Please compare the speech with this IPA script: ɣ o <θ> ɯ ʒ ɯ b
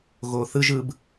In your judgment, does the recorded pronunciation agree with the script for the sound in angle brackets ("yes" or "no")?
yes